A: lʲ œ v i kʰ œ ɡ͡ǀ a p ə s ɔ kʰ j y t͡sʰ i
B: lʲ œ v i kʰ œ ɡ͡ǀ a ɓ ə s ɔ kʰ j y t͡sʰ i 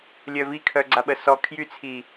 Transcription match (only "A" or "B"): B